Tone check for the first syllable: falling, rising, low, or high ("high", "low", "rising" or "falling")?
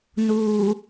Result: low